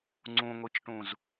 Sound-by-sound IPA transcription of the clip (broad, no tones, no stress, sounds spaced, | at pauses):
ŋ͡ǀ ũ ŋʷ i t͡ʃ ʈ ũ z